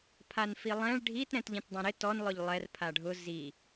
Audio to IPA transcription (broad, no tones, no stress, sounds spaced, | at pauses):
pʰ a n f i lˠ ɛ̃ ɭ ɖʱ i t ɾ ɛ̃ t ʎ ĩ t dˤ ɛ̃ ɾ ɪ t ɔ n lˠ ʊ ʎ lˠ ɛ r pʰ a ɖʱ ʊ z i